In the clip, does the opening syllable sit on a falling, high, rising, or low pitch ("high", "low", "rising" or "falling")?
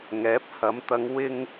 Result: rising